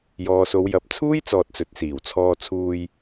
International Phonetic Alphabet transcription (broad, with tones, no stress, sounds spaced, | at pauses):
j ɔː˨ s o˨˧ w j ɐ˨˥ p̚ t͡sʰ uː˥ j t͡s ɔː˨ t̚ t͡s ɵ˨ t̚ s iː˨˩ w t͡sʰ ɔː˧ t͡sʰ uː˧ j